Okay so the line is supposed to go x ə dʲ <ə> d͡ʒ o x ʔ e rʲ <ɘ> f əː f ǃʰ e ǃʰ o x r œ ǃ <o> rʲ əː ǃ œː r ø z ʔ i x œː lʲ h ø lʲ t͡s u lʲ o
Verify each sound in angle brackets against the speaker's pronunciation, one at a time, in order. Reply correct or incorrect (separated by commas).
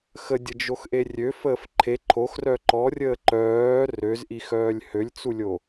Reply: correct, incorrect, incorrect